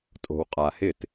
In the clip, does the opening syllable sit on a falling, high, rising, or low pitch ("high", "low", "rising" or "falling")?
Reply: low